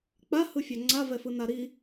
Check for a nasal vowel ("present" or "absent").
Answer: absent